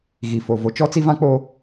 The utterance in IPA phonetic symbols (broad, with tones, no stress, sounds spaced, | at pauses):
ɣ i˨ f o˨ v o˨ t͡ʃ ɔ˦ t͡s i˦ v ã˦ k͡p o˦